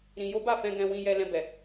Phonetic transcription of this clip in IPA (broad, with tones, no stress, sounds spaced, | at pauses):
ɾ ĩ˧ j o˦ b a˦˨ f ɛ̃˧ ɡ ɛ̃˧ w ĩ˧ j ɛ˧ l ɛ̃˧ b ɛ˨